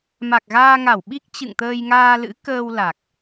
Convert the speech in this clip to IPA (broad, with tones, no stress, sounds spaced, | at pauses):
m a˨˩ k̚ ɣ aː˧ ŋ a˧˩ w ɓ i˦˥ k̚ t͡ɕ ɨ̰˧˨ ŋ t̪ əː˧ j ŋ aː˧ l ɨ̰˧˥ k əː˧ w l a˨˩ k̚